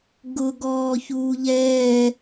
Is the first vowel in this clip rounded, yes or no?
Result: yes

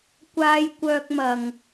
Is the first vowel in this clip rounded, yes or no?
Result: no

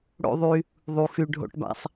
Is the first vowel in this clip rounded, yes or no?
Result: yes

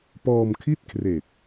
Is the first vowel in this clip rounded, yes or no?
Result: yes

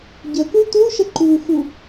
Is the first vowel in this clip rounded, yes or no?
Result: no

